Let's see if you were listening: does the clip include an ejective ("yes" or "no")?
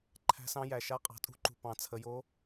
yes